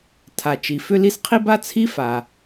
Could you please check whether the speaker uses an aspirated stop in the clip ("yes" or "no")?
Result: yes